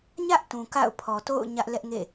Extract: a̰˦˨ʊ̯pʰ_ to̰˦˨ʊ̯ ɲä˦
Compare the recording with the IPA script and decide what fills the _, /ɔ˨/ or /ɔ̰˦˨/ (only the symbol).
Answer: ɔ˨